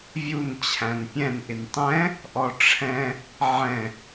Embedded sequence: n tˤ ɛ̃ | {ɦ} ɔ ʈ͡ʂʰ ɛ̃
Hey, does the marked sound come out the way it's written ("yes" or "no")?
no